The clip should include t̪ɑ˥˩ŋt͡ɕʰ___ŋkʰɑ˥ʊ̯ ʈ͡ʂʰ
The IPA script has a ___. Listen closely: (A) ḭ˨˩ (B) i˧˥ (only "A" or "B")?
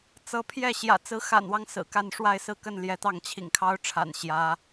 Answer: A